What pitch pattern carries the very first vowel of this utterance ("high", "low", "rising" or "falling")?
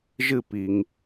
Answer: falling